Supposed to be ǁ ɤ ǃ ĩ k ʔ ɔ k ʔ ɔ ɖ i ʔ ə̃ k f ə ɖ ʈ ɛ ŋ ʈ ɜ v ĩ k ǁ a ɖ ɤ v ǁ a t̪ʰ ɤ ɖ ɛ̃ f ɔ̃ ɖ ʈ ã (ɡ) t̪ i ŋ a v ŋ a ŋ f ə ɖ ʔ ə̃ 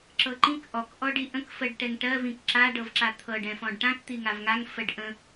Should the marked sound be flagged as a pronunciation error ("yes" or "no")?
yes